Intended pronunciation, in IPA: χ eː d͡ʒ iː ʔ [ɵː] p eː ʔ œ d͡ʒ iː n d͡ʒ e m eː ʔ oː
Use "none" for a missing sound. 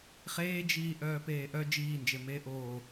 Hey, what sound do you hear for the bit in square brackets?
œː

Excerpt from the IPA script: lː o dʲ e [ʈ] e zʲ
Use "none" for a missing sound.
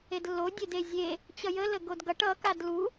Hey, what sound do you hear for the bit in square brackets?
d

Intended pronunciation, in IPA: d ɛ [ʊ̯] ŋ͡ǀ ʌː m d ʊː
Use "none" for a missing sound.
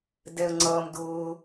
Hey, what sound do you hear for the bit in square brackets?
ə̯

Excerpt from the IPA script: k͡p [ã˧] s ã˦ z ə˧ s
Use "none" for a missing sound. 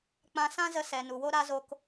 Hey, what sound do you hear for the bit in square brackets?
ã˧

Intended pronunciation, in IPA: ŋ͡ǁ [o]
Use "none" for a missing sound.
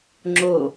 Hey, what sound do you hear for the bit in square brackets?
o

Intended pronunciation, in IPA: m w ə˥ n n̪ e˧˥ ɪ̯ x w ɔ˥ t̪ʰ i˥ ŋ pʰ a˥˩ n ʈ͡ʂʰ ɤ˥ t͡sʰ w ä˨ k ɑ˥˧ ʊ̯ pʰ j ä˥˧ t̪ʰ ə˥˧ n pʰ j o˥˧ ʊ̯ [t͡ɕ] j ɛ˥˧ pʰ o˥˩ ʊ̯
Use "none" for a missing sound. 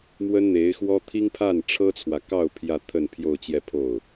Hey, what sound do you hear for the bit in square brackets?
t͡ɕ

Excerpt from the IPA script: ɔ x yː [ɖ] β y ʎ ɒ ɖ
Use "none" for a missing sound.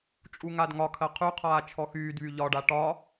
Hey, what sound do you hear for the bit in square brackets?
d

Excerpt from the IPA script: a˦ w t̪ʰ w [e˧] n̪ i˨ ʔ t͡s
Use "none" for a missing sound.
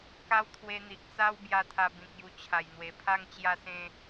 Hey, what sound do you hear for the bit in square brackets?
e˧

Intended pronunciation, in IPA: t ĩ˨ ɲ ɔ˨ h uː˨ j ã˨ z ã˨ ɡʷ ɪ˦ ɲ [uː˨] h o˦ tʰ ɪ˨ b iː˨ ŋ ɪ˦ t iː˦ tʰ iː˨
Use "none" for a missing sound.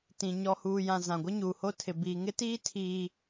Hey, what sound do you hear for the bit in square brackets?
uː˨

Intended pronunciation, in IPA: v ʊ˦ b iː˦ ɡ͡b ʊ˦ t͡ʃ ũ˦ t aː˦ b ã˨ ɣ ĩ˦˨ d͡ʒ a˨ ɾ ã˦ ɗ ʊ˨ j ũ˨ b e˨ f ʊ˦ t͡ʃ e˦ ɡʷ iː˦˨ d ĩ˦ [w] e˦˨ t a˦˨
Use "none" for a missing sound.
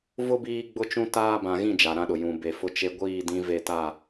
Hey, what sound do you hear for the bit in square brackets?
v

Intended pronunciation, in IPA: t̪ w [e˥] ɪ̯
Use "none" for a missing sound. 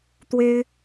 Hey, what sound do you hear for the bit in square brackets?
e˥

